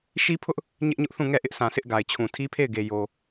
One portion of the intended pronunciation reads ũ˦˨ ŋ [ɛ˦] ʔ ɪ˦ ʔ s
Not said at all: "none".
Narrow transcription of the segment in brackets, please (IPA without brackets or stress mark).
ɛ˦˨